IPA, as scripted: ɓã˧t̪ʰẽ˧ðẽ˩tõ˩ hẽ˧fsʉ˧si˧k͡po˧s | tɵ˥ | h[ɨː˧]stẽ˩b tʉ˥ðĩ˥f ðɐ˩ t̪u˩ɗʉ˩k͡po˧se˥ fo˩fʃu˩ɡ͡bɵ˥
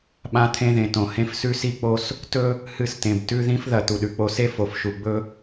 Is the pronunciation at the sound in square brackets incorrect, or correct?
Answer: incorrect